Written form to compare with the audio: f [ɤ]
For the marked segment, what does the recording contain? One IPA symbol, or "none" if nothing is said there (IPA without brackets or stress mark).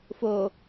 o